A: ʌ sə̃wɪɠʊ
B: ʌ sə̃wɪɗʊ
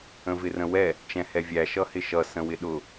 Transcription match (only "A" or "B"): B